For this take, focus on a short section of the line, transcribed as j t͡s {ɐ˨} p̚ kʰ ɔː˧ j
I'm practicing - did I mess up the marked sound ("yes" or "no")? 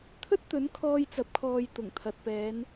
yes